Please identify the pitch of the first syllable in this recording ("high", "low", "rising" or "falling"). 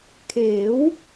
rising